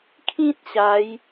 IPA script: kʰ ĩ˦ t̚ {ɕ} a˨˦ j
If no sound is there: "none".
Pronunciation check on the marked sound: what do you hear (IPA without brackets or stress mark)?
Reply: ɕ